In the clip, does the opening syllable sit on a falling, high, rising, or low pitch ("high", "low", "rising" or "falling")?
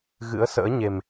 rising